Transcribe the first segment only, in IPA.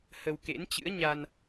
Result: h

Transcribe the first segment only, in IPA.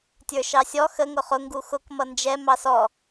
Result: tʲ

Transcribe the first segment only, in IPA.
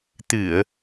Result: t̪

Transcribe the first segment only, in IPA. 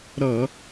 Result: ɾ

